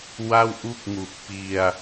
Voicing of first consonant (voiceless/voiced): voiced